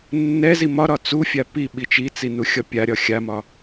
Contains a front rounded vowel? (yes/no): no